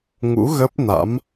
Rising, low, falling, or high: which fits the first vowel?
rising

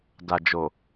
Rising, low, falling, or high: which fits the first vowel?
low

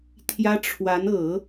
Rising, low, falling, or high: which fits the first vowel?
high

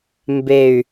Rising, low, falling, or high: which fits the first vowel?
falling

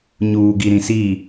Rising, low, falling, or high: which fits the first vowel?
low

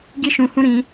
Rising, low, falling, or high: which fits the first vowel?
high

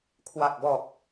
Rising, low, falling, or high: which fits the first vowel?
low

